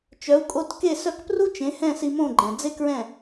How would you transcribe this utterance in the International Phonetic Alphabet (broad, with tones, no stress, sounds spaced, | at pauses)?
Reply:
t͡ʃ œ˩˥ u̯ kʼ o˧ t k e˥˩ s œ˥˩ k p r u˥ t͡ʃ ẽ˩˥ h ɛ̃˥˩ s i˧ m õ˥˩ ɡ͡ǃ ɛ̃˩ d͡z e˥ k ɹ ɛ̃˥˩